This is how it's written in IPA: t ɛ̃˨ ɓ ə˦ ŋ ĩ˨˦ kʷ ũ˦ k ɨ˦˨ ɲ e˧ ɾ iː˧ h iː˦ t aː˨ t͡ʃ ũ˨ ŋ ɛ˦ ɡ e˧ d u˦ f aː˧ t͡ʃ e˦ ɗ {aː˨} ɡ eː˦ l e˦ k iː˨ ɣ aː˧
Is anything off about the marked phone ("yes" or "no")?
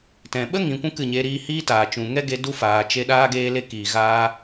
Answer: yes